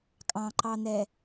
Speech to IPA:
kʼ ɑ̃ ǃ ɑ n̪ ɛ

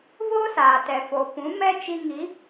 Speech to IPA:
v oː˦ s aː˨ t ɛ˨ f o˨ p ũ˨˦ m ɛ˦ t͡ʃ i˧ ŋ i˨˦

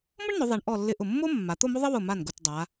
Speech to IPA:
m ʊ˥ ɳ n ʊ˩˧ ðˤ ɛ˩˧ ɳ ʔ ɔ˧˩ lː ɪ˧˩ ʔ ʊ˧˩ mː o˥ mː a˩˧ t̪ o˥˧ m o˥ ðˤ ɪ˥ w ʊ˧˩ m a˧˩ n ɡ ʊ˧˩ t dˤ a˩˧

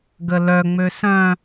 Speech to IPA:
ɡ ə l œ ŋ͡m ø s œ̃

